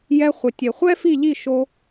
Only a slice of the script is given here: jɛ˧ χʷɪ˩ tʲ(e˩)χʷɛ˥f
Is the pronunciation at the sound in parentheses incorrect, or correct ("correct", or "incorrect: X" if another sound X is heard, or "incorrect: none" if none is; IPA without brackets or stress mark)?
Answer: correct